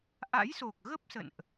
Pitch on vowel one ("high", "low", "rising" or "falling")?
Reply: rising